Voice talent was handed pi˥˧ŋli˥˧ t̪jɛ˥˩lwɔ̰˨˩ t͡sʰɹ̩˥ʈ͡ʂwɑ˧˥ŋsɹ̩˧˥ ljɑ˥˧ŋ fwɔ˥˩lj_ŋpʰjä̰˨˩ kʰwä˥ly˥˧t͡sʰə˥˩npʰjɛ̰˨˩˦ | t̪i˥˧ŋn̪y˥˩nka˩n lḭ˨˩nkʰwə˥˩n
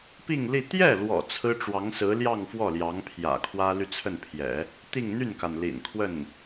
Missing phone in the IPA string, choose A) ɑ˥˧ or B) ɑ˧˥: B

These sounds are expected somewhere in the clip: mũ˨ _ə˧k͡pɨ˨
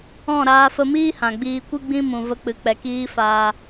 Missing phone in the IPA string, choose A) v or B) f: A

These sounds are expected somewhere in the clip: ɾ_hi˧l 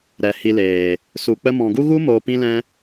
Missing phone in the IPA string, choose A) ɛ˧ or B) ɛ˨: B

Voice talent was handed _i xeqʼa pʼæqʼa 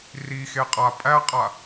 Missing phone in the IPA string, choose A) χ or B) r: B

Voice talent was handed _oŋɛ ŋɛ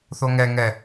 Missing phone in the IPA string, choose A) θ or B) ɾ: A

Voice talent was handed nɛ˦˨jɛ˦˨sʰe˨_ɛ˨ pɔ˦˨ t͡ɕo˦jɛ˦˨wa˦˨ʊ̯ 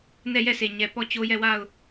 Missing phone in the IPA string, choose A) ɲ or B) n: A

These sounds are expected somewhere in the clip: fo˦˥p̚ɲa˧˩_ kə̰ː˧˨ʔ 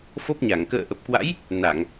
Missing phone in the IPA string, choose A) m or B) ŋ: B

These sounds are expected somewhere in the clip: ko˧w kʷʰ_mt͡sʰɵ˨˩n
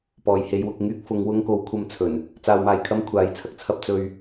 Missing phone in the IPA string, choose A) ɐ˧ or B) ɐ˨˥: A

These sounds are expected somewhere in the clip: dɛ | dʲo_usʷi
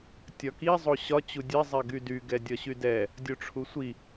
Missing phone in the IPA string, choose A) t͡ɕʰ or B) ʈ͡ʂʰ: B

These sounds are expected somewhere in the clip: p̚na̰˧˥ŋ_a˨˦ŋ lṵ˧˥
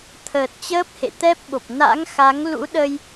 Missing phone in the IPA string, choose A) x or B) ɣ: A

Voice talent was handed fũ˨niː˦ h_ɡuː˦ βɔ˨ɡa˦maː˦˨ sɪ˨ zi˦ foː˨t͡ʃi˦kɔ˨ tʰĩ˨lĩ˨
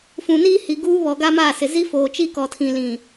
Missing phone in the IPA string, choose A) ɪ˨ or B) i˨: B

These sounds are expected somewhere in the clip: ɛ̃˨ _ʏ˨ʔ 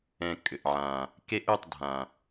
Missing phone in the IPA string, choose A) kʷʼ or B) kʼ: B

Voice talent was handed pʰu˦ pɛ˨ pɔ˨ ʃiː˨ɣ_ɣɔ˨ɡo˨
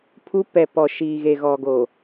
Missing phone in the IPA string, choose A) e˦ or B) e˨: B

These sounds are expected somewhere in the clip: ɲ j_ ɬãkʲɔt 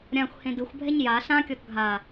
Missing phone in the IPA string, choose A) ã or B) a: B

